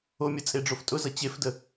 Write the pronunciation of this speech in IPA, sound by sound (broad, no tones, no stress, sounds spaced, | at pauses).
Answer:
o mʲ ʌ t͡sʼ e ɖ͡ʐ o f tʼ ʊ z ʌ t͡ɕ e f d ə